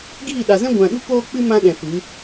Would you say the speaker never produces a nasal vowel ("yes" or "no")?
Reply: no